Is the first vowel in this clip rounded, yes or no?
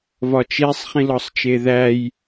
yes